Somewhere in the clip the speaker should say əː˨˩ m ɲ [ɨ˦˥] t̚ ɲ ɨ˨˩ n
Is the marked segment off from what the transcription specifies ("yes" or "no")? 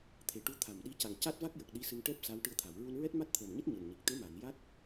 no